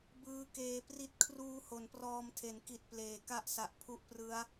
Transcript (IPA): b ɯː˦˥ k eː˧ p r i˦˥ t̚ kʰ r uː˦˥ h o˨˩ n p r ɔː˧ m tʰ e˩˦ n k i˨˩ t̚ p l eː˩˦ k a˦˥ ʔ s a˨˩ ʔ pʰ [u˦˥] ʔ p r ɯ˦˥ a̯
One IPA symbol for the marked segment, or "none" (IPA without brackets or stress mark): u˦˥